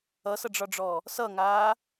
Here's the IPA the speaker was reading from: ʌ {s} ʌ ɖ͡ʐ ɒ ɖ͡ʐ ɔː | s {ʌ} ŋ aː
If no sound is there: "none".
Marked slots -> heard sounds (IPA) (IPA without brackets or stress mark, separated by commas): s, ʌ